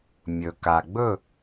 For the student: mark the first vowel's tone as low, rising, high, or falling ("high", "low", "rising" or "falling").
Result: low